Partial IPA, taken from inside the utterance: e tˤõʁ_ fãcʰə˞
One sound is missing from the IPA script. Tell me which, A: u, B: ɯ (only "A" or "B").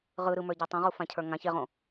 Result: A